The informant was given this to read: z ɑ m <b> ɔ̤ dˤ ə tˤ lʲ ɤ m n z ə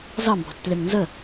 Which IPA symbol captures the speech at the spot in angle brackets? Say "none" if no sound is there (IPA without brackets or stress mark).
b